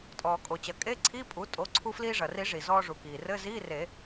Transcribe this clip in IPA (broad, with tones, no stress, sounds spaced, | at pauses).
tʼ ɔː˩ kʼ o˩ t͡ɕ ɐ˩ kʼ e˧˥˧ ǀʰ i˧˥˧ pʼ u˩˥ tʼ o˩˥ ǀʰ u˧ f l iː˧ ʐ ɐ˩ r i˨˩˦ ʐ i˩ z ɔː˧ ʐ u˩ k iː˩ r ɘ˧˥˧ z iː˧˥˧ r e˨˩˦